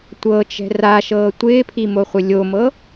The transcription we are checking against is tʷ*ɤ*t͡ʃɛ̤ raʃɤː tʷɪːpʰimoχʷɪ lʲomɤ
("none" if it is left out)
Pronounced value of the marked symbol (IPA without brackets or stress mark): ɤ